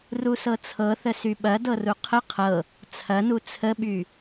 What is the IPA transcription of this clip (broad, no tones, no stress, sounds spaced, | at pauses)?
r u s ɤ t͡sʰ ɤ θ ə s y ɓ ɐ d ɤ r u qʰ ə qʰ ɤ | t͡sʰ ɐ n u t͡sʰ ə ɓ y